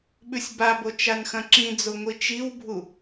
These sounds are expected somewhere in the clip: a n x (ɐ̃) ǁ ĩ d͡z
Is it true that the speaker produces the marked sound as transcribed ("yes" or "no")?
yes